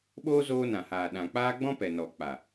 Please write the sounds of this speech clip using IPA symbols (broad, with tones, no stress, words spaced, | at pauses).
ɓoː˦zoː˧nã˨haː˨ ɗã˨k͡paː˦ ɡ͡bɔ̃˦pɛ˨nɔ˨ k͡pa˨